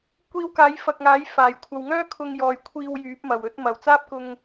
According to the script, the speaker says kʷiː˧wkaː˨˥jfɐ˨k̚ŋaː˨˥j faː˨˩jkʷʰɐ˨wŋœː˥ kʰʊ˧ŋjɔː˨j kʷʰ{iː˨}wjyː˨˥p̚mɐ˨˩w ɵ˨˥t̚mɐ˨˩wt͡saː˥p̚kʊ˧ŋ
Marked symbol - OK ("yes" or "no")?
no